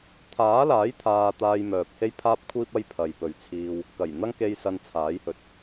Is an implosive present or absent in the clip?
absent